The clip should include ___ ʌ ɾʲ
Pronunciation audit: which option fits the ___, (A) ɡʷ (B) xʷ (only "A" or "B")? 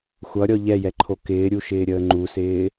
B